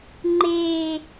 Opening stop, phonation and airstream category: click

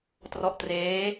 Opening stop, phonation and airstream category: plain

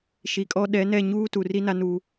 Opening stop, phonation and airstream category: ejective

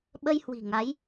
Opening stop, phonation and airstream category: implosive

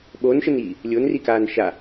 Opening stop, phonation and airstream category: implosive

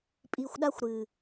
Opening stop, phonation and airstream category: ejective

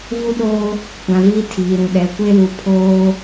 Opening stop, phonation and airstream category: implosive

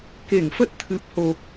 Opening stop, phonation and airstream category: plain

